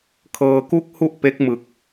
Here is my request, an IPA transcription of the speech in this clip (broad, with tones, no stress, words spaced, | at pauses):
kʰɤː˧ku˥˩k̚hu˥˩ʔ pe˦˥k̚mɯ˨˩k̚